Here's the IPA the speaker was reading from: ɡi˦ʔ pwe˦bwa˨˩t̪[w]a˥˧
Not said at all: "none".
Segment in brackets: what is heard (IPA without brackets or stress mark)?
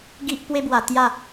j